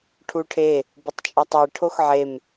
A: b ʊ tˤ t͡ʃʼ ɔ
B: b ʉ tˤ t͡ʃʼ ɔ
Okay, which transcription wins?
A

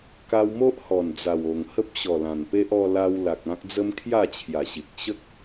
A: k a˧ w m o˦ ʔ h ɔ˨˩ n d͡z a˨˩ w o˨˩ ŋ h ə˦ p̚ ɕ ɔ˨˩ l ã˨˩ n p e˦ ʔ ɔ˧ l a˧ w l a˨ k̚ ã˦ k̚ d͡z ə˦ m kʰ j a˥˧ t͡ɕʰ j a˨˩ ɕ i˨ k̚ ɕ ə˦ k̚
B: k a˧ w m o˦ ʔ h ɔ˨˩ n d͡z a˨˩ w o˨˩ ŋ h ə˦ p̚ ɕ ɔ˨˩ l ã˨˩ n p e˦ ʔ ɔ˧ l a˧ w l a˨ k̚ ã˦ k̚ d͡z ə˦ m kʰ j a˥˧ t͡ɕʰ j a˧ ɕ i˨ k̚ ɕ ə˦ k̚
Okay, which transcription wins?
A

